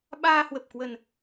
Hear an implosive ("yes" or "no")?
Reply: yes